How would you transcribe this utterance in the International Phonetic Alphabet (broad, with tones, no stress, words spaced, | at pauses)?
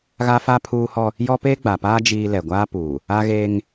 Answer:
ɣa˦fa˦ pʰuː˦hɔ˦ | jɔ˦peː˦ɡ͡ba˨paː˦ d͡ʒiː˦ lɛ˨ɡʷaː˦puː˨ | a˦ɣeː˦ŋ